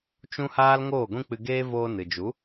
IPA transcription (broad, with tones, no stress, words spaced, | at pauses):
t͡ʃũ˦haː˦l ŋoː˦˨ɡʷĩ˦k͡pɨ˧ɡeː˦ voː˧nɨ˨d͡ʒu˨˦